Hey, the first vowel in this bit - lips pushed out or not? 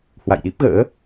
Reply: no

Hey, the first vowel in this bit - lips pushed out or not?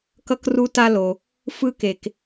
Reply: no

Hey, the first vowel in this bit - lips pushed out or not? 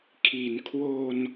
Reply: no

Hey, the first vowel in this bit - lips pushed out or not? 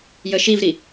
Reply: no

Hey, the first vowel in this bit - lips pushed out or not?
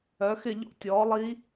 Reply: yes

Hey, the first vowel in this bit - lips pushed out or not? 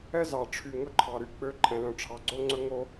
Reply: no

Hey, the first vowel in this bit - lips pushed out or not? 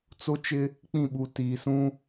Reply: yes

